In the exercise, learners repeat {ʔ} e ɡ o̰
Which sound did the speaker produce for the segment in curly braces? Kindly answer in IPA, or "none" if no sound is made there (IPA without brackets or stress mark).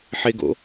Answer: ħ